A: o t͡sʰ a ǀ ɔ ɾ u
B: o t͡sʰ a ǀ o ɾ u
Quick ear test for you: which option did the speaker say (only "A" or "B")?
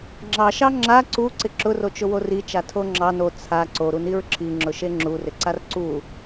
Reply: B